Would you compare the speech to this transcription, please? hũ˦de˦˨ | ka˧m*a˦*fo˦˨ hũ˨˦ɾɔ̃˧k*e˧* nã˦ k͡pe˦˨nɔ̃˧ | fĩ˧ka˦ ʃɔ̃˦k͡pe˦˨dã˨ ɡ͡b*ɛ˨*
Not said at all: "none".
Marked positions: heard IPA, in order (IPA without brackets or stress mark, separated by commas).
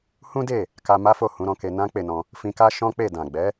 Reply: a˦, e˧, ɛ˨˦